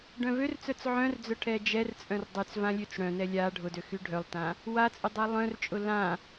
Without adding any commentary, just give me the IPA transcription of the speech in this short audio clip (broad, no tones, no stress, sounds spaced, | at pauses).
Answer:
ɖ œ̃ v ø r t͡s œ t͡s ʕ œ̃ r d͡z œ ʈʰ ɛ d͡ʒ ɛ r t͡sʼ œ̃ r dˤ y t͡s v ã lʲ ø t͡s ɽ œ̃ n ɛ lʲ a ɖʱ ʊ d ø x y ɖʱ œ lˠ t ã | w a t͡sʼ ʊ dˤ ɛ lˠ œ̃ r t͡ʃʼ ʊ l ã